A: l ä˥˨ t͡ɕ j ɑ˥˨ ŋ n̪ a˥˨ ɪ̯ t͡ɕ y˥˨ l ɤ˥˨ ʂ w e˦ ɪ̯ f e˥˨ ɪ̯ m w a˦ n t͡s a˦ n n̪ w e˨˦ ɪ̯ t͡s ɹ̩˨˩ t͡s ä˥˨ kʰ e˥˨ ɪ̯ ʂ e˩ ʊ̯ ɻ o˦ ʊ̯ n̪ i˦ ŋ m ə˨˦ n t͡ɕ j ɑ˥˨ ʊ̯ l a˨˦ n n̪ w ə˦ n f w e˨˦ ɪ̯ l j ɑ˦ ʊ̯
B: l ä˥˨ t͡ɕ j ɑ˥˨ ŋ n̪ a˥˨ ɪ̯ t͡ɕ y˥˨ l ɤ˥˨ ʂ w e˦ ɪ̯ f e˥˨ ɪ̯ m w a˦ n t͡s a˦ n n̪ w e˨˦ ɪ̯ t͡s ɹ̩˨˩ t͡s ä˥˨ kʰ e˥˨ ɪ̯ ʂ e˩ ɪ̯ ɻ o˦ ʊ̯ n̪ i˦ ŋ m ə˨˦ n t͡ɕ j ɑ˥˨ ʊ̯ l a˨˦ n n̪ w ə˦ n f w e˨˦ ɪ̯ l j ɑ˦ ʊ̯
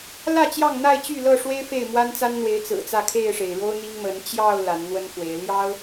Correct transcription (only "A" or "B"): B